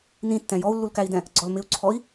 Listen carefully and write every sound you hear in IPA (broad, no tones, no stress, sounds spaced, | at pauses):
n ĩ tː ɛ̃ j ɔ u̯ lː u l k æ i̯ d ɛ̃ | ɡ͡ǀ ɔ l m ɪ u̯ ǀʰ ɔ i̯